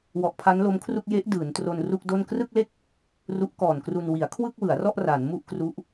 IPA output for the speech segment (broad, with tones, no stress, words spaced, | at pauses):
wɔ˨˩ʔpʰa˦˥nlo˦˥mkʰru˥˩k̚ je˦˥ʔ dɯː˩˦ntro˧n ru˥˩k̚do˥˩n krɯ˥˩k̚le˥˩k̚ | ru˦˥ʔkɔː˨˩nkru˧n wi˩˦a̯kʰwɯ˥˩k̚wɯ˩˦a̯rɔ˥˩ʔ ra˩˦nmu˥˩ʔkru˦˥ʔ